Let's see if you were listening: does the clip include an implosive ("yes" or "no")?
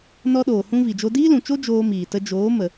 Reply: yes